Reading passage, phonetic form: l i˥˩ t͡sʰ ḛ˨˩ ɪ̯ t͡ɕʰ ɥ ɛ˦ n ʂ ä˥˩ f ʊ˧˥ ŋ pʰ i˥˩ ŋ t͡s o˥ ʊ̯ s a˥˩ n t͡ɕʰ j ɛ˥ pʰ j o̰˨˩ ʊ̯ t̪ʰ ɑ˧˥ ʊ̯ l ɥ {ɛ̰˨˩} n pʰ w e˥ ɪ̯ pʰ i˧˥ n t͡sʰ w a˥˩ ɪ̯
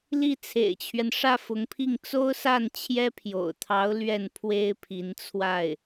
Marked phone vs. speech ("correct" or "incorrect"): incorrect